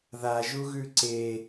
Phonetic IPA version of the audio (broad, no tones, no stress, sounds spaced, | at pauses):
ð a ʒ u ɣ ʉ ǀ e